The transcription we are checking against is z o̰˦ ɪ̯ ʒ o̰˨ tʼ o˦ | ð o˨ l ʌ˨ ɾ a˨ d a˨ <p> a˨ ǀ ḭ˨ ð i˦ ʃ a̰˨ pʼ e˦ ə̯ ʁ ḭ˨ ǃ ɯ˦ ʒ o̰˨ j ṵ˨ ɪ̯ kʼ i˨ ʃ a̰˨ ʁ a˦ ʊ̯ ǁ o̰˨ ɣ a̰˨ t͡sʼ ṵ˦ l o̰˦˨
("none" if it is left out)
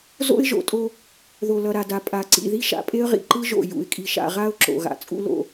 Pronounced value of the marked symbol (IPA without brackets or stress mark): pʼ